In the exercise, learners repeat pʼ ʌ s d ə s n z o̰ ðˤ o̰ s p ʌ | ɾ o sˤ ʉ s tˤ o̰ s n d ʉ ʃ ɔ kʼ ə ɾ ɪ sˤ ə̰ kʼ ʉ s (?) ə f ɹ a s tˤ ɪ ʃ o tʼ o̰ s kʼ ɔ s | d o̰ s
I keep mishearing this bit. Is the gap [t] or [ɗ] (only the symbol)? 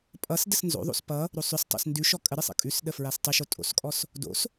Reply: ɗ